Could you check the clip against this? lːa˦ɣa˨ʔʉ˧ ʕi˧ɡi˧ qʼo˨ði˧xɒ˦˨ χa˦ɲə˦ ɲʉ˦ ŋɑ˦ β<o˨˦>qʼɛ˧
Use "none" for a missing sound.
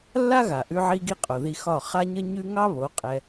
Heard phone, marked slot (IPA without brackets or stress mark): o˨˦